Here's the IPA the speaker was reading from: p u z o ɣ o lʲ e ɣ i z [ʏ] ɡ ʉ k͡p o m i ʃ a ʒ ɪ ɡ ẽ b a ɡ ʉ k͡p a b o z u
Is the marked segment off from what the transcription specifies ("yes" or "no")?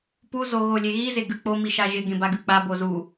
yes